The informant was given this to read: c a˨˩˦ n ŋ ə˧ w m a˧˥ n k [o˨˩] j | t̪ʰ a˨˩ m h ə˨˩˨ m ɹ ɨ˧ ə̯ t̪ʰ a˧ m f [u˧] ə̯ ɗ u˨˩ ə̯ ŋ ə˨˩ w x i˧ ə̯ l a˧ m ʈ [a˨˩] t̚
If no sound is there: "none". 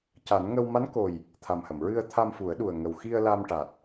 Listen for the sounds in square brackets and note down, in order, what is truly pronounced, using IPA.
o˨˩, u˨˩˦, a˨˩

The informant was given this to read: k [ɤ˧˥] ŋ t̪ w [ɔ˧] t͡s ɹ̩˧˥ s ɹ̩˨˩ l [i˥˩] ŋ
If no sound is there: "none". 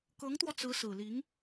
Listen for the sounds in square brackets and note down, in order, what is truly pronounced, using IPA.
ɤ˧˥, ɔ˧, i˧˥

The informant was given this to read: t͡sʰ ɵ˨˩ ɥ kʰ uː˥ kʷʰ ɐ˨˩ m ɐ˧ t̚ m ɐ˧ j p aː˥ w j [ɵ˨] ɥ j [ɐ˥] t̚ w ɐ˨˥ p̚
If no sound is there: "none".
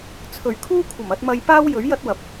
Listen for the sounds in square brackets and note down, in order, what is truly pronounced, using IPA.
ɵ˨˥, ɐ˥

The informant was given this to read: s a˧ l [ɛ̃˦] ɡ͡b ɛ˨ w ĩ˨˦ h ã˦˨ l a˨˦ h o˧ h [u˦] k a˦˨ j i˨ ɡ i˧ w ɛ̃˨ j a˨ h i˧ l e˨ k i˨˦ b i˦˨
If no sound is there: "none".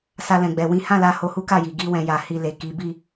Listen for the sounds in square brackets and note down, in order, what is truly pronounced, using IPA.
ɛ̃˨, u˦

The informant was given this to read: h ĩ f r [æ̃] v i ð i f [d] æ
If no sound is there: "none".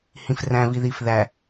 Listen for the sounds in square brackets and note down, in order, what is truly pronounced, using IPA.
æ̃, ð

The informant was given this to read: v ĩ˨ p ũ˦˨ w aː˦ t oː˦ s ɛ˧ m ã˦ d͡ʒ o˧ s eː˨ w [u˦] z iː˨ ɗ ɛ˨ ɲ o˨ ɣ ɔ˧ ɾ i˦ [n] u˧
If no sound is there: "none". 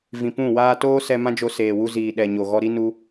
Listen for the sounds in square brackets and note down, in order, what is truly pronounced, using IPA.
u˧, n

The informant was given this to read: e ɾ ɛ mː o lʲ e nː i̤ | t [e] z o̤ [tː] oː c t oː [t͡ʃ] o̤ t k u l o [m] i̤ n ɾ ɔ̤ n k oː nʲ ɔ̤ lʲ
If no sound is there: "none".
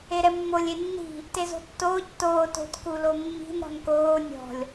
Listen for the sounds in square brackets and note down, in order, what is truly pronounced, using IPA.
e, tː, t, mː

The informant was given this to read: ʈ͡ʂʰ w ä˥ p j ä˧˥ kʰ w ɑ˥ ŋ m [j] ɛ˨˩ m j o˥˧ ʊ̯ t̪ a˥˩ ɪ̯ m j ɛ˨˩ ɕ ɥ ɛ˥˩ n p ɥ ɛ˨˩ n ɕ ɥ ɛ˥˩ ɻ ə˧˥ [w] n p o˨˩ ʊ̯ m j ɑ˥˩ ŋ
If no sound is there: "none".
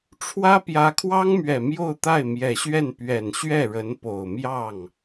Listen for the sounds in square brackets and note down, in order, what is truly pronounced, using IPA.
ɥ, none

